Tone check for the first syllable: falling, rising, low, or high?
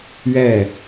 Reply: falling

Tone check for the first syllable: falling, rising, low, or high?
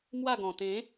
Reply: falling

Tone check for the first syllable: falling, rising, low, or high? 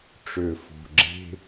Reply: low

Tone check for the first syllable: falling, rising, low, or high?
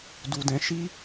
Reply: low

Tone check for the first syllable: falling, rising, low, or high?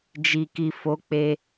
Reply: low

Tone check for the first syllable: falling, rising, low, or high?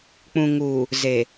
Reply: low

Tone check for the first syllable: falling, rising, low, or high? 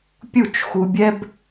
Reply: falling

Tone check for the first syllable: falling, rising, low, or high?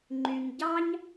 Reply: low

